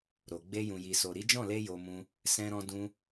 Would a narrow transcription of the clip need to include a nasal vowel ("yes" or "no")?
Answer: yes